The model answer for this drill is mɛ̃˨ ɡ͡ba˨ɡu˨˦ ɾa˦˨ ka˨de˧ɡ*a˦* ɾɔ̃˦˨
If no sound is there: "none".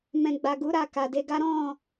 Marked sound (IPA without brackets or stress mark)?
a˦